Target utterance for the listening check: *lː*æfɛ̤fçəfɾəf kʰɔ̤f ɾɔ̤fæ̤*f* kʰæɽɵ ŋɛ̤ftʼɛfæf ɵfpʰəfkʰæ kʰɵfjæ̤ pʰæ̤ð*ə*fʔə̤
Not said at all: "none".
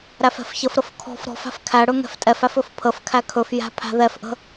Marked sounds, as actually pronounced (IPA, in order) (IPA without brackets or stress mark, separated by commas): ɾ, f, ɛ